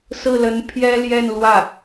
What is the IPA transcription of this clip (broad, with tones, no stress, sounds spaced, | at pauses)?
s ɹ̩˥˩ l ə˧˥ n pʰ j ɛ˥ l j ɛ˥˧ n l w ä˥˩